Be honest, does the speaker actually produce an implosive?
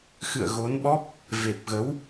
yes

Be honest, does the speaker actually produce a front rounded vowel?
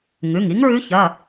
no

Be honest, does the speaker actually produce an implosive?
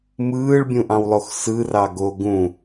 no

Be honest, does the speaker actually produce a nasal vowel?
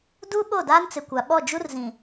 yes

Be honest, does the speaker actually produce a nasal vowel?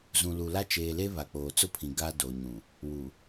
yes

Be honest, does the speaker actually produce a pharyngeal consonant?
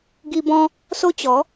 no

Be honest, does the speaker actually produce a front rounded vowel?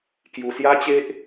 no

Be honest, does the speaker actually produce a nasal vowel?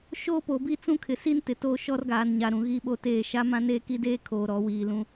yes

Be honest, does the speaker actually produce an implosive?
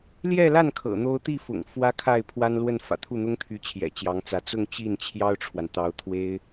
no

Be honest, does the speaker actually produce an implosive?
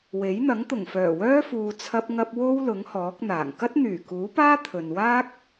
no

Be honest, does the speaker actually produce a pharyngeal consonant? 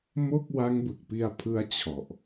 no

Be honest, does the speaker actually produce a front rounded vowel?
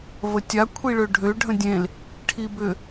yes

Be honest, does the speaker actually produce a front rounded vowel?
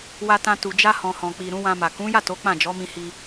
no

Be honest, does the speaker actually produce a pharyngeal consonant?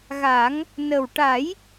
no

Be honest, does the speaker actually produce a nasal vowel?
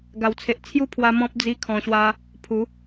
yes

